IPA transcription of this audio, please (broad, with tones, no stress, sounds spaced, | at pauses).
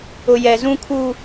ʊ˦ j ɛ˦ z ũ˦ kʰ uː˦